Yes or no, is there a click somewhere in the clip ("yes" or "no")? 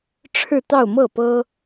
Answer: no